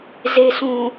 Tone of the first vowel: low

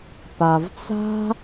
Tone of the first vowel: low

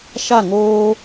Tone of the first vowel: falling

